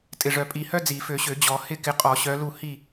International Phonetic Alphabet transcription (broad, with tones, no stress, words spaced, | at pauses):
tʼɪ˨˩ʐœ˨˩pʼi˨˩˦hœ˥ d͡zi˨˩˦fø˨˩˦ɕø˨˩˦ d͡ʑɔ˨˩˦ hɪ˦˨kɪ˨˦ qʼɔ˨˩˦ɕœ˨˦lu˦˨ hi˦˨